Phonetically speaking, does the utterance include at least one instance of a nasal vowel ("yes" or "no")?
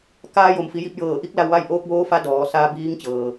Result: no